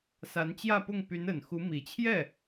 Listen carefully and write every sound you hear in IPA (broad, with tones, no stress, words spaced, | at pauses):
sa˧˥nt͡ɕjä˥˧pʊ˥˩ŋ py˧˥n ə˨˩nxu˧˥ mi˨˩t͡ɕʰjɛ˥˩